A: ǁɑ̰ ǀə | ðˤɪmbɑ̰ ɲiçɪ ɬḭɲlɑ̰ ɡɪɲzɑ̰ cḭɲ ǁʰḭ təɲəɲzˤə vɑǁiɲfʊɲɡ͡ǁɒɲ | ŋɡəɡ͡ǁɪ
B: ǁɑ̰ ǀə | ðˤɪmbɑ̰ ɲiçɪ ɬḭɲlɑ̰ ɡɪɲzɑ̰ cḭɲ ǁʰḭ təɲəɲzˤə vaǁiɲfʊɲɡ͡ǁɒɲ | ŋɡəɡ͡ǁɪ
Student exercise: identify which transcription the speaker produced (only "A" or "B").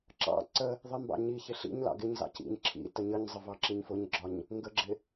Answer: A